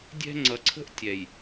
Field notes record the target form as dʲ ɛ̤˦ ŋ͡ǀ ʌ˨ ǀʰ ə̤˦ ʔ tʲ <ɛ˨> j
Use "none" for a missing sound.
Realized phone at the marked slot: ɛ˨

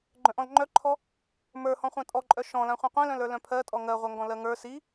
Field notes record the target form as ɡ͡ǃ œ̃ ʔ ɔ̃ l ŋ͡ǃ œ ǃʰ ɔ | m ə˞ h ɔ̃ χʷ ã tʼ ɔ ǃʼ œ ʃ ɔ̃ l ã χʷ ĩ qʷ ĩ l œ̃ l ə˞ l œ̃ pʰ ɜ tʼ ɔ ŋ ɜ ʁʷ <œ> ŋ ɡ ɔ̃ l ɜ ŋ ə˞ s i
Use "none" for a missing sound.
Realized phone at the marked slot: œ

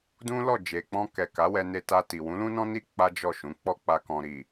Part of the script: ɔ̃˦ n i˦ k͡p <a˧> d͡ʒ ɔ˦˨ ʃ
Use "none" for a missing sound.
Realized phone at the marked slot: a˦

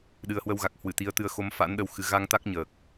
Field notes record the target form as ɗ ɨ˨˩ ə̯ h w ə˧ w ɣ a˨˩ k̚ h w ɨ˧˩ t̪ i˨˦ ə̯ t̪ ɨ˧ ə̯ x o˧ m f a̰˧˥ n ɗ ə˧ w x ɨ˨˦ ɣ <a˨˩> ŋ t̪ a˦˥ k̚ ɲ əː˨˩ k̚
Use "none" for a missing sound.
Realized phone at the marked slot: a˧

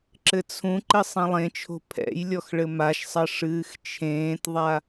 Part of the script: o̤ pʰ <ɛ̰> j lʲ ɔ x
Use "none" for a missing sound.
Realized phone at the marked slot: ɛ̰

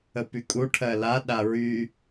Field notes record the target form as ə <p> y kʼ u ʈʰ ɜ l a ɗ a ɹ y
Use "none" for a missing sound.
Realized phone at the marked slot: p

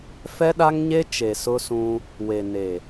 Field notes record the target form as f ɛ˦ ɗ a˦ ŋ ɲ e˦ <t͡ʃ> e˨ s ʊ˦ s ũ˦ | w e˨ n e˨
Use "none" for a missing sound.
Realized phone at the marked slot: t͡ʃ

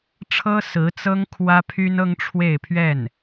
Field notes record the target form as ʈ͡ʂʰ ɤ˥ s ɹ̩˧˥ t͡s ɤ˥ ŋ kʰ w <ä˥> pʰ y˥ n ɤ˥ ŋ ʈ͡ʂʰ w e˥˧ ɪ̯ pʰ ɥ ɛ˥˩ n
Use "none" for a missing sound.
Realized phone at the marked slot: ä˥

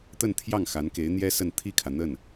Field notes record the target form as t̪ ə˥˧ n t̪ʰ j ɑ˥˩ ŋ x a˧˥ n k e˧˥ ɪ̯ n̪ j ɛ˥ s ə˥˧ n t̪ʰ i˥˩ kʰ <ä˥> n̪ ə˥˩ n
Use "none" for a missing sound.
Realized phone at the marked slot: ä˩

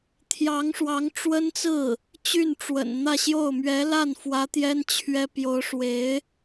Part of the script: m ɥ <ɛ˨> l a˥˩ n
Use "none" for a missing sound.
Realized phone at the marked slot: ɛ˧˥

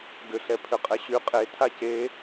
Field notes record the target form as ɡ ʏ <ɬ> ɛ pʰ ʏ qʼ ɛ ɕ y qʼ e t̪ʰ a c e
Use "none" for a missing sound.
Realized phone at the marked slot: ɬ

